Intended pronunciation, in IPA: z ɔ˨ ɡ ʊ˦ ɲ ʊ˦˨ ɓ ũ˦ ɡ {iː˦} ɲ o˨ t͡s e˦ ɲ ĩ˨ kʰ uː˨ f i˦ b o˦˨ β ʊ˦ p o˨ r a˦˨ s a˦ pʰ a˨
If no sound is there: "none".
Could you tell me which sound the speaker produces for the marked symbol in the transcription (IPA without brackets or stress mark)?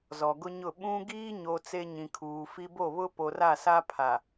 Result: iː˦